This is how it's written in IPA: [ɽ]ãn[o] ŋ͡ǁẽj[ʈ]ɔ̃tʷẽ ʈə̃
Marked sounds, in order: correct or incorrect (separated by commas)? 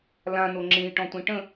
incorrect, correct, correct